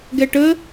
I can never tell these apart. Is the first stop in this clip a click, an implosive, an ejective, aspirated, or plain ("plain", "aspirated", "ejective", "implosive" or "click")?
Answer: plain